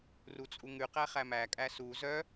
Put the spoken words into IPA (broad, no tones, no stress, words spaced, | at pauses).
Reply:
rut͡sʼuŋʉqæ χæmækʼæ su zœ